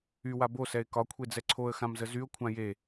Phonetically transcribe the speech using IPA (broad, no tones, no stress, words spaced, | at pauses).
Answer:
ywa bosɛɪ̯ kɒkʷʰed͡zɛ ǀʰoə̯xãmzə zyʊ̯kʷʰã je